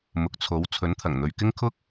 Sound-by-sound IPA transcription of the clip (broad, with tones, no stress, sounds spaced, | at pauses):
m ʊ˨˥ k̚ t͡sʰ o˨˥ w t͡sʰ ɵ˨˥ n t̪ʰ ɐ˨˩ ŋ n̪ ɵ˨ ɥ k ɪ˥ ŋ kʰ ʊ˥ k̚